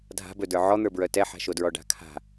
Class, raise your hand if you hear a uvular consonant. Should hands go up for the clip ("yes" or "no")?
no